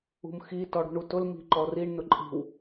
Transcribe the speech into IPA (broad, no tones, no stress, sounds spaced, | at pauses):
ṳ m x i t ɔ ɽ ṳ ɳ u t ʊ l m i̤ ǃ ɔ r i ɳ n ʊ ǃʼ i̤ w